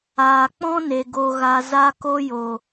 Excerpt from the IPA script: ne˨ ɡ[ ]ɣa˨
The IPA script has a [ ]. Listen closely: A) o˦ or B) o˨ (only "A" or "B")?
B